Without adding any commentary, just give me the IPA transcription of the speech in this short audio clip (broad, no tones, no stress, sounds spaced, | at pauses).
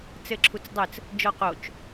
t͡s ɘ ǁʰ u t͡s dˤ ɘ t͡s | d͡ʒ ɔ q o t͡ʃ